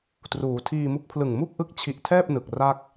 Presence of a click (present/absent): absent